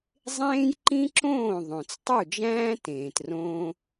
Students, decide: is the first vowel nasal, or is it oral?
nasal